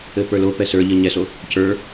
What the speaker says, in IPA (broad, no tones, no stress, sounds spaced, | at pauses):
ɘ p ə˞ l o p ɛ s ə˞ ʎ ɘ ɲ ɛ s o | c ə˞